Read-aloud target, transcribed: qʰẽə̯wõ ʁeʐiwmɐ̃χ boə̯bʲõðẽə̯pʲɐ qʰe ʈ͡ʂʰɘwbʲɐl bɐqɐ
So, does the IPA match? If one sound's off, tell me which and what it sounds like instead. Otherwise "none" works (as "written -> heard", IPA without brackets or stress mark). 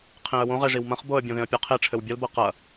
none